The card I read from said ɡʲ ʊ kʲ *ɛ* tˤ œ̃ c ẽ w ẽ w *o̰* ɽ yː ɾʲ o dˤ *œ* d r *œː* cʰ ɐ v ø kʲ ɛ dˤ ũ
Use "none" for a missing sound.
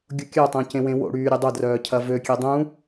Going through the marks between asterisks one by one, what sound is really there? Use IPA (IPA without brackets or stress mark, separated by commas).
œ, o̰, œ, œː